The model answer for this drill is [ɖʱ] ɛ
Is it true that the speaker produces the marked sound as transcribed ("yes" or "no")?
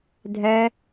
no